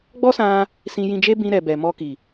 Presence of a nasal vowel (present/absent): present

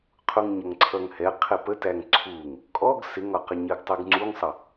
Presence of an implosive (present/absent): absent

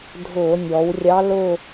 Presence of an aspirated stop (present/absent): absent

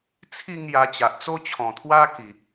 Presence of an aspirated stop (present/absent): present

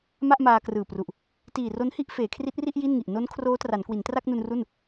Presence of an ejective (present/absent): absent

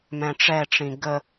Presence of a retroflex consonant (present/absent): present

